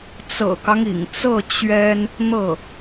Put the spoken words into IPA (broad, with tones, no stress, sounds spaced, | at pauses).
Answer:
t͡s ɤ̰˨˩ k ɑ˦ ŋ ḭ˨˩ ŋ t͡s ɤ˥˩ t͡ɕ ɥ ɛ˥ n | n̪ ɤ˥˩